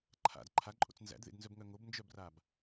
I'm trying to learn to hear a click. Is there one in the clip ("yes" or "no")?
yes